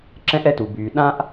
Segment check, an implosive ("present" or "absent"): present